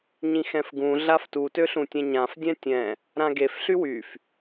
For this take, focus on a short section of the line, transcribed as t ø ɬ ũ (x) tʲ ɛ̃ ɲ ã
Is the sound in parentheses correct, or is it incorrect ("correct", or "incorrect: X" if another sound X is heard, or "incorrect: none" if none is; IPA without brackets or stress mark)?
incorrect: none